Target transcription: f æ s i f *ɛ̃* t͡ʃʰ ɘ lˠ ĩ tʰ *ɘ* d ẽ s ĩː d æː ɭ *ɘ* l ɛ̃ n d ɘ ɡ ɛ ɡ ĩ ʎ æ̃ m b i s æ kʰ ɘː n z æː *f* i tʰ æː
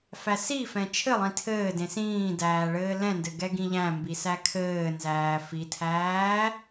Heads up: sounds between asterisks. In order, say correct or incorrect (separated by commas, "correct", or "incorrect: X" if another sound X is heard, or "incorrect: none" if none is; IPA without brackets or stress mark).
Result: correct, incorrect: ɘː, incorrect: ɘː, correct